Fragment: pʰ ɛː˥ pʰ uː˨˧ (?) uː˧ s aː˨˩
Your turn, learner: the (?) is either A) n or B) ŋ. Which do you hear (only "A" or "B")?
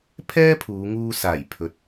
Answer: B